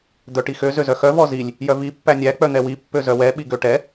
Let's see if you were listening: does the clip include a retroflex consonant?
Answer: yes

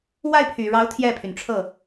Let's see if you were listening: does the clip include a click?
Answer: no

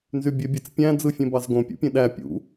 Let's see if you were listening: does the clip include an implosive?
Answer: yes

